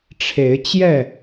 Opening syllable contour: rising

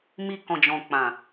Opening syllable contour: low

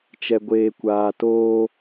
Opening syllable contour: low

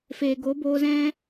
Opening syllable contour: low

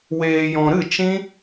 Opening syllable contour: low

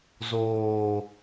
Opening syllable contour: low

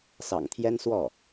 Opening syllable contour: low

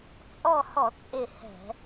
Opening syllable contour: falling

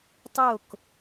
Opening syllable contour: falling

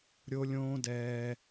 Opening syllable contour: high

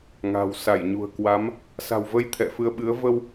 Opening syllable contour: low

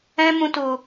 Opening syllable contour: high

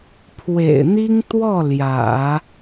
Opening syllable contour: low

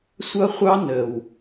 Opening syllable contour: high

